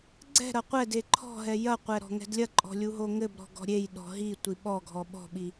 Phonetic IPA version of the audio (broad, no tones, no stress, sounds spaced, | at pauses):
ɡ͡ǀ ɛ̤ ɾ ɐ qʷ ɛ d e ǃʰ ɔ̤ ɦ ɛ j ɐ qʷ ɛ ɾ ɔ̤ ŋ ɛ̤ d lʲ ɐ ǃʼ ɔ̤ lʲ u ɦ o ŋ ɘ b ɾ ɔ̤ ɡ ɔ̤ ɾʲ e j ɗ ɔ̤ ɦ i tʷ i ɓ ɔ ɡʱ ɔ ɓ ɔ̤ ɓ i